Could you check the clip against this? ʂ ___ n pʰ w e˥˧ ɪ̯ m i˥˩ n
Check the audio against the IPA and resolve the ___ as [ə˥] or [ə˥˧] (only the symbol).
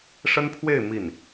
ə˥